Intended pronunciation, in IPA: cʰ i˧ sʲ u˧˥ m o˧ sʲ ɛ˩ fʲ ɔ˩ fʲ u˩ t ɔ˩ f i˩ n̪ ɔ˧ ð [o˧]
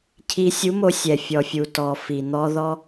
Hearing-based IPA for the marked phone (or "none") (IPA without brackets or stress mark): ɔ˧